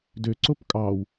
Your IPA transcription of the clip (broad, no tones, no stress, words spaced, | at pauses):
dø ǀopkʼɑw